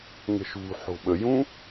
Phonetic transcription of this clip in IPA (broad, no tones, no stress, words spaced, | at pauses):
ŋə̤ʃṳħo̤ ɓəjũ